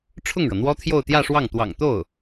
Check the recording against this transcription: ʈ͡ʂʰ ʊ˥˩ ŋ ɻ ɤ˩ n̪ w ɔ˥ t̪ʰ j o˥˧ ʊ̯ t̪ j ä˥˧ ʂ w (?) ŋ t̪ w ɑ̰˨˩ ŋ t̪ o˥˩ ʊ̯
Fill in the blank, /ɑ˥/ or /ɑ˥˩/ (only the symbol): ɑ˥˩